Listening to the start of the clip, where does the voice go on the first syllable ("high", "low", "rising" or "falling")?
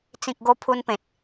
low